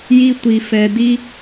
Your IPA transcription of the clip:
j i˥ tʷ i˧ f ɛ˧ d i˥

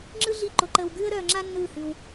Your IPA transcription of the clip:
ŋ͡ǁ ɯ˦ ɮ i˦˨ ǃ o˧ ǃ əː˧ w ɡ ʉː˦ ə̯ ɾ œː˧ ŋ͡ǁ a˦ nː ɯː˦˨ h ʉ˧ w

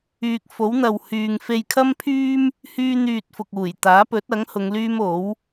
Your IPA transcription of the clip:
yː˨ k̚ f o˨˥ w n̪ ɐ˨ w h yː˨ ŋ f e˧ j kʰ ɐ˥ m pʰ yː˥ m | h yː˥ n̪ yː˧ t̚ f ʊ˨ k̚ uː˨˩ j t̪ aː˨˥ p ɵ˨˥ t̚ ɐ˨˥ ŋ h ʊ˨˧ ŋ l yː˥ m o˨˥ w

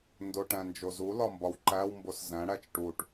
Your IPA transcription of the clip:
n d o ʈ æ̃ n d͡ʒ o z u l ɒ m b ɒ w ǃ æ w m b o s z æ̃ ɽ æ t͡ʃ ʈ u ʈ

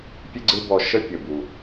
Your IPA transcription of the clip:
pʲ ɨ˥ ɡ͡ǀ ɨ˥ b ɔ˧ ʃ ə˥ pʲ ə˩ b u˩

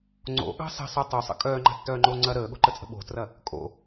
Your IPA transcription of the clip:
ŋ͡ǀ o̰ ɠ ɑ̤ s ə̤ sˤ ə tˤ o sˤ ə̰ kʼ œː ŋ͡ǃ a̤ tː œː ŋ͡ǃ oː ŋ͡ǀ ɐ ɾ əː ɠ o̤ ǃ ə t͡sʼ ə̤ ɓ o̤ t r ɐ | kʼ o̰

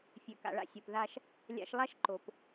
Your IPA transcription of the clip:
fʲ ø˨ k a̰˨ ɭ a̰˧ sʲ o˨ p ð a˧ ʃ | lʲ a̰˧ ʃ lˠ a˦ ʃ ǃ o˨ p

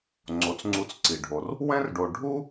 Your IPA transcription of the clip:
ŋ͡ǀ o˩ t͡s ŋ͡ǀ u˨ t͡s ǀ i˩ ɖʱ o˩ r | w ɛ̃˥ r ɖ o˨ ɖʱ u˥

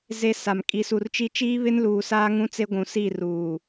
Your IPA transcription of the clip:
z e˦ s a˨ m kʼ i˨ s u˨ r t͡ʃ i˦ t͡ʃ iː˦ β ɪ˦ n l uː˨ s aː˦ ŋ ũ˦ t͡s e˦ ɡʷ ũ˨ s i˦˨ r uː˨

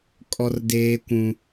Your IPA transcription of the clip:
kʼ ɔ˦ r d eː˦ kʷ ũ˦

